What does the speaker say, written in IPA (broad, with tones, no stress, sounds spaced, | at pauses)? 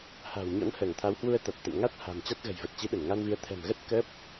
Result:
h a̤˨˩ w ɲ ɔ̰˧˥ n h əː˧˩ ŋ t̪ʰ a˨˦ w h w u˧ ə̯ t̪ a˨˩ t̚ t̪ ə̰˧˨ m ŋ a˦˥ t̚ h a̤˨˩ m t͡ɕ a˦˥ t̚ ɣ ə̤˨˩ j v ə˨˩ t̚ t͡ɕ i˨˦ ɗ ə˧˩ n ŋ a˧ n v i˨˦ ə̯ t̪ʰ ɛ̤˨˩ m ɣ ə˦˥ t̚ k əː˦˥ p̚